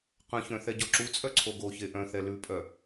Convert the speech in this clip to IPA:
qɐ̃çœ̃ θɛɟɔǁut͡sʼœ ǀʰoɡoçe ʔœ̃θɛ lʉpʼœ

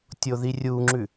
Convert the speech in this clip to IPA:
tʲoðirʲuŋ͡ǁʉ

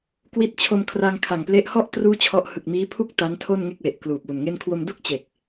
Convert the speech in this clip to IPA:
kwi˦˥t̚t͡ɕʰo˧mkʰra˧ŋ kʰa˨˩ŋple˦˥ʔ hɔ˥˩ʔ truː˥˩t͡ɕʰɔ˦˥ʔ hɯ˨˩k̚miː˦˥pʰu˥˩k̚ ta˦˥ntʰo˥˩n ŋe˥˩k̚we˨˩ʔ kluː˨˩p̚wu˨˩nŋe˥˩n kʰwo˧mdu˥˩k̚ t͡ɕe˨˩k̚

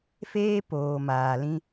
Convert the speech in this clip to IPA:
feː˦poː˨ maː˨lĩ˦

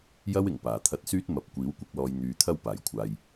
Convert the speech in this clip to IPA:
jɐ˥wɪ˨˩ŋ paː˨˩t̪ʰɐ˧t̚syː˥t̚mɐ˨˥p̚ kʷiː˨˥wkʷɪ˧k̚ lɔː˧j n̪yː˨˧t̪ʰɐ˥wpaː˨˩j kʷʰaː˧j

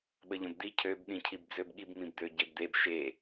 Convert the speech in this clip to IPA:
ɓəʎə̃bd̪i cʰøb ɗĩcʰibd͡zøbɠib mĩbd̪øɟebd̪eb ʃe

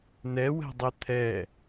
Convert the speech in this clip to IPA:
nɛwɛ̤dˤe t̪ʰɛ

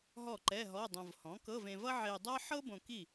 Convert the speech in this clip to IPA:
ɦɔ˥˩ǃɛ˧˥˧ɦɔ˧˥˧dˤõ˧v hɔ̃˩˥kɤ˧˥˧vẽ˧vʌ˥ ʕe˧dˤʌ˥ ħɤ˥ bõ˧ki˥˩

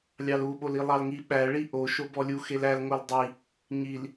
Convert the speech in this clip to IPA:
lʲɑluɓol ilˠɑlŋi ɓæɭi ʔo ʃobɔlʲu xelæl ŋoldˤi | ɲil

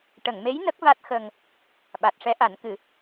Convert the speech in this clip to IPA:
ʈə˨˩˨ŋme˧˥j nə˦˥k̚va˦˥t̚xə˧ŋ | ɓa˨˩t̚ʂɛ˧˥ʔa˨˩˦n kɨ˨˩˦

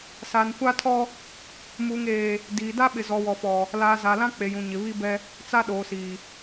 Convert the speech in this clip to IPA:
sa˨nkʷa˦tʰɔ˦ | muː˨ŋeː˨ | diː˨ da˦ɓɪ˨zɔ˨ wɔ˨fɔ˨ | laː˨ za˨lã˦ k͡pe˨jũ˨ɲɪ˨ βi˦bɛ˦ | t͡sa˦ɗoː˨siː˨

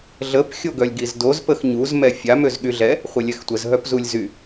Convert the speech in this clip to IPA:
ɮəp xʲoɡœlʲɡizdoz pəxɲuz mɛfʲa møzɠyɮɛ | χʷelʲɛxtʷəz ɦœpzulʲzy

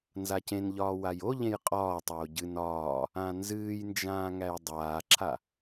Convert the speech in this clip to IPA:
nzacẽnʎɒː wajoʎẽj qʼɒːtˤoː ɟɨn ɒː | ãnzɨːjnd͡ʒãː ŋæjdˤaːǁʰa

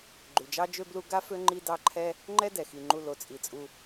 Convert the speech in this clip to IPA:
ɡ͡ǃʉ˩d͡ʒɑ˥d͡ʒø˥blu˦ ɡa˥fø˦ ŋ͡ǃi˦dɑ˦ǃʰɛ˥ | ŋ͡ǃɛ˦dɛ˩xi˩ŋ͡ǃu˨ lo˩t͡sʼi˩t͡sʼu˨

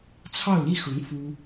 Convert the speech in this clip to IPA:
t͡sʰɑ˥˧ʊ̯li˥˩xʊ˧˥ŋ fu˥

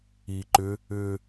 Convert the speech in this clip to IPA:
iːǃʏ | ʏː

